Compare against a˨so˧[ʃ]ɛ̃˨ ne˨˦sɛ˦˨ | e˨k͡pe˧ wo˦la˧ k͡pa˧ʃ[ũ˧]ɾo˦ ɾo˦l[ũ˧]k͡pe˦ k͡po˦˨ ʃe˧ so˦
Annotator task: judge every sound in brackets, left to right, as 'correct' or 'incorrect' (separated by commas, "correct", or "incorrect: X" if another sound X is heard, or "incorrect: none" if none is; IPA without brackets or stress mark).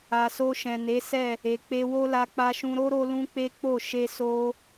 correct, correct, incorrect: ũ˦